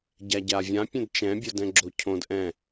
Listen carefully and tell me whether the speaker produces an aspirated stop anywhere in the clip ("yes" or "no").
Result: yes